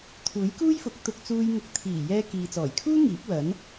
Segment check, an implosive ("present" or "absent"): absent